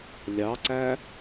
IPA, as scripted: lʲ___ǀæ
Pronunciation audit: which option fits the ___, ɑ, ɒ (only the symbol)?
ɑ